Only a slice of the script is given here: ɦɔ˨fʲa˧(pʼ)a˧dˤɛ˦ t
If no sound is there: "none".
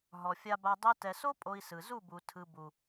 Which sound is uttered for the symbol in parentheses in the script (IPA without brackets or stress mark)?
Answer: b